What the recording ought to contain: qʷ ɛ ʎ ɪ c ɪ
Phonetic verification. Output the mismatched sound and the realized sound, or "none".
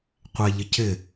none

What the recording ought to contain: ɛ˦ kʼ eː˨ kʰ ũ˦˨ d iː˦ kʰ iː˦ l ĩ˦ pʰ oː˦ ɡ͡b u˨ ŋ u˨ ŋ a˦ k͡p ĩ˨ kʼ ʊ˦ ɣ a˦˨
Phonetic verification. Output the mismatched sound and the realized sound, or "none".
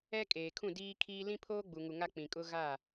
none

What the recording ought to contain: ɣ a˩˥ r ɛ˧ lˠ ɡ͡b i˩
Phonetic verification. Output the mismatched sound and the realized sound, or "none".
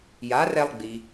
ɣ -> j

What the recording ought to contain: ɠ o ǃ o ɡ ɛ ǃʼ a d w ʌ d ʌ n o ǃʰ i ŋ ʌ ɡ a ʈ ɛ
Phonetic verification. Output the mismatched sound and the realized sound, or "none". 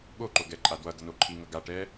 none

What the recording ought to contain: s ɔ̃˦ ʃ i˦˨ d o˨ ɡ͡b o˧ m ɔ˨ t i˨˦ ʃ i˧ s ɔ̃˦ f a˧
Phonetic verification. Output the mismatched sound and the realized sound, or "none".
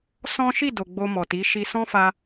none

